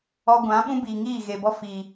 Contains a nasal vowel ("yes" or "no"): yes